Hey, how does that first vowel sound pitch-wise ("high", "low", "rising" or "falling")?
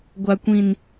low